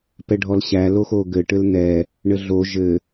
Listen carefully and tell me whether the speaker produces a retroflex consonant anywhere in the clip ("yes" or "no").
yes